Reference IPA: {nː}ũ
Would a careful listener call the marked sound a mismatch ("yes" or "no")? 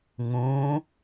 yes